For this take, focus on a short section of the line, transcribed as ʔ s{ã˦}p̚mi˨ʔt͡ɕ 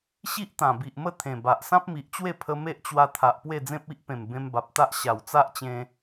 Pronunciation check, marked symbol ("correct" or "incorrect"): correct